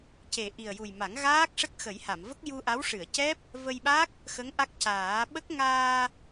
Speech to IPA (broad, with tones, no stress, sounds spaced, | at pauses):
c e˨˩ ʔ i˨˩ ə̯ j u˨˩ j m a˨˩˦ ŋ ɣ aː˦˥ k̚ ʂ ə˦˥ k̚ x ə˨˩˦ j h a˨˩˨ m v ə˦˥ k̚ j u˧ ʔ a˧˥ w ʂ ɨ˨˩˨ ə̯ c ɛ˦˥ p̚ | v ə˧ j ɓ a˦˥ k̚ | x ə˧˥ ŋ ʔ a˦˥ k̚ c aː˨˩˦ ɓ ə˦˥ k̚ ŋ aː˧